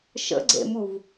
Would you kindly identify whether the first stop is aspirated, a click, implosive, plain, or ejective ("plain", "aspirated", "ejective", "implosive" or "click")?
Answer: click